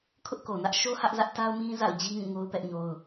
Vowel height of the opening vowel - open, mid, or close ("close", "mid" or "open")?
close